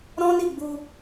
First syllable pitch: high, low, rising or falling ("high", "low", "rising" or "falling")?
high